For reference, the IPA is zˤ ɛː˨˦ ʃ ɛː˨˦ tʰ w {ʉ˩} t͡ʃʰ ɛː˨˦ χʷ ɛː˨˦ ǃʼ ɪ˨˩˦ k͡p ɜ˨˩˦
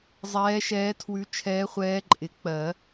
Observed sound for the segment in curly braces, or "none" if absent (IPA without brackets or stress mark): ʉ˨˦